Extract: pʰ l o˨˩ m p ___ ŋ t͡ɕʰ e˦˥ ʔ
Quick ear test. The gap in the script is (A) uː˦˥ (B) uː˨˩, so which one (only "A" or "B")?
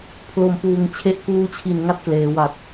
B